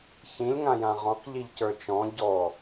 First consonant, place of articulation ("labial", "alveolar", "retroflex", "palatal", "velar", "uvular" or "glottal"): palatal